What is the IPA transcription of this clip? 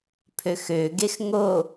pʰ ø x ø ɡ e x ŋ o

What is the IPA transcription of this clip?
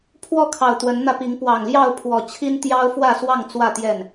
pʰ w ɔ˥˨ kʰ ɑ˨˩ ʊ̯ t̪ w ə˨˦ n n̪ ä˧ p i˨˦ ŋ p w ɑ˨˩ ŋ l j ɑ˥˨ ʊ̯ pʰ w ɔ˨˩ t͡ɕʰ i˦ n t̪ j ɑ˦ ʊ̯ f w ä˥˨ s w ɑ˥˨ ŋ t͡s w ä˥˨ t̪ j ɛ˥˨ n

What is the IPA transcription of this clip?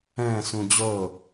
ə̃ː s ũ d͡ʑ o

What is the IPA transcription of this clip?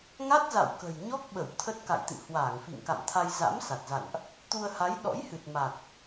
ŋ a˦˥ t̚ z a̰˧˨ w k ə̤˨˩ j ɲ ɔ˦˥ k̚ ɓ ə˧˩ w t̪ʰ ə˦˥ t̚ k a̰˧˨ j t̪ ɨ̰˧˨ h w aː˧˩ ŋ f ḭ˧˨ ŋ k a̰˧˨ m t̪ʰ a˧ j z a̰˧˥ m s a˨˩ t̚ z a̰˧˨ n ʔ | t̪ u˧ ə̯ h a˨˦ j ɗ ɔ̰˧˥ j h ɨ˨˩ t̚ m a˨˩ t̚

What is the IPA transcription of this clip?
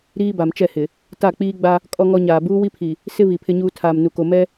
ɾ iː˦ b a˨ m t͡ʃ ɛ˦˨ h ɪ˨ | t a˦˨ k͡p iː˦ ɡ͡b a˦ | kʼ ɔ˦ ŋ ɔ˦ ɲ aː˨ b uː˦ w i˦ pʰ i˨ | s ɪ˦ β i˨ pʰ ɪ˦ ɲ uː˦ tʰ aː˨ m n u˨ k o˨ m ɛ˦

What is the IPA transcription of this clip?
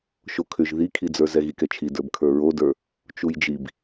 ʃ o kʰ ʏ ʒ ð i kʰ i d͡z ə˞ z ɛ ɣ i k ɛ t͡ʃʰ i d ə˞ b kʰ ə˞ ɹ o d ə˞ | t͡ʃ u j d͡ʒ i b

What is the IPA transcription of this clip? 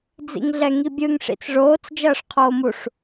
d͡z ḭ ŋ ɮ ɛ ŋ i bʲ ɯ ŋ ʂ ḭ t͡s ʐ oː t͡s d͡ʒ ʌː ʂ qʰ oː m u ʂ

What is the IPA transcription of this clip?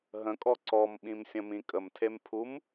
ɦ ə̃ kʼ ɔ ǀ ɔ m ɓ ĩ m sʲ ə̃ m ĩ kʼ ə m tʰ e m pʰ u m

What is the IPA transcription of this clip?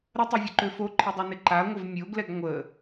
ɾ ə tˤ ɛ vʲ ʊ ǃ ø f o ǃʰ ɪ dˤ ɛ n ɪ ǃ a ŋʷ ə v mʲ o ɡ l ɛ ɡ ŋʷ ə

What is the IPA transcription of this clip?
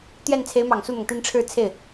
t̪ j ɛ˥˩ n t͡sʰ e˧˥ ɪ̯ m ɑ˨˩ ŋ s u˥˩ n̪ ɤ˩ ŋ t̪ i˥˧ n ʈ͡ʂʰ ɻ̩˥˧ t͡sʰ e˥˩ ɪ̯

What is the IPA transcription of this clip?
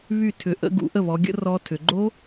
β y˥˩ tʰ ʏ˧˩˧ ʔ ə̰˦˥ ɡ ṵ˨˦ ʔ ə˥˩ β ɔ˨˦ ɡʲ ə̰˦˥ r ɔ˦˥ tʰ ʏ˨˦ ɡ͡ǃ o˦˥

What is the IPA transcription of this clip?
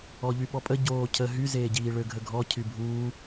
ɔ ʎ y ɓ ɔ pʼ ə ɟ oː cʰ ə ɦ y z eː ɟ iː ɭ ø ɡʱ ə ɡʱ ɔ cʰ y bʱ uː

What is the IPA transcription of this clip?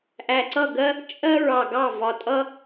ʔ æ˨˩ ǀ ʌ˥˩ ɡ ɜ˥ | t͡ʃʼ ɜ˥ ɹ ɑ˨˩ ɡ ɑ˥˩ v ɒ˨˩ tʼ ʌ˥

